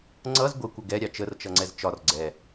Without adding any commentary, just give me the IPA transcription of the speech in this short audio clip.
ŋ͡ǀ ʌ z ɡʷ ɪ kʷ ə ɡ ɛ ɾʲ ɑ t͡ʃ ə r t͡ʃ ʌ ŋ͡ǀ ɛ z t͡ʃ ɒ r ɡ͡ǀ ɛ

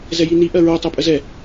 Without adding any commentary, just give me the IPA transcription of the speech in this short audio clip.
z ɛ j i n i ʔ ɜ ɹ o tˤ e pʼ ə z ɛ

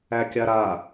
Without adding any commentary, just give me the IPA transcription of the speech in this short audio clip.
æ kʲ a ɾ a

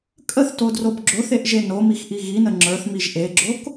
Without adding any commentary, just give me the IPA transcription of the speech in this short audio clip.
kʼ ə θ t o d r o b ɡ͡ǁ o θ e ʔ ʒ e n o m i x ʔ i ɣ i n ə ŋ͡ǁ ə˞ θ m i ʒ ʔ e ɡ͡ǁ o k

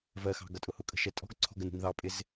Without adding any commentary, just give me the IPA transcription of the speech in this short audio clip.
v ɜ x ɑ̤ ɡ ʌ tʼ ʊ h ʊ kʼ ə̤ ʃ ɛ tʼ ɔ̤ ɡ ǀʰ ɔ̤ ɡ ə n ṳ n ð ɑ pʼ ɪ z

